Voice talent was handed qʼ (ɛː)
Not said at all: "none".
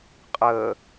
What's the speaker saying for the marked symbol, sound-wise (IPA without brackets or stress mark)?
əː